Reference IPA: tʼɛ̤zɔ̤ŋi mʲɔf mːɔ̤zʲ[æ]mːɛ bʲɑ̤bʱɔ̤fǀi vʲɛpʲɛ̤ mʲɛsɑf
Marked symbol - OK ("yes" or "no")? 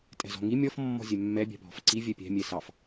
no